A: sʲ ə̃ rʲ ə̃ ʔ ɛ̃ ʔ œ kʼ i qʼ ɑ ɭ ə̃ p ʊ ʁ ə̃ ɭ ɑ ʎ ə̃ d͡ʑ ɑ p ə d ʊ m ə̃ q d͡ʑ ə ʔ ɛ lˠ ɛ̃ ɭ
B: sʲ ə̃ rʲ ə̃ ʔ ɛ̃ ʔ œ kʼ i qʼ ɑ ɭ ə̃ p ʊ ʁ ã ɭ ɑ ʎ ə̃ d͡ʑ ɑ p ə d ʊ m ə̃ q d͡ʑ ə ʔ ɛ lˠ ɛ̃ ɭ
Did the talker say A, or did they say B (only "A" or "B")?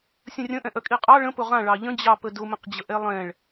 B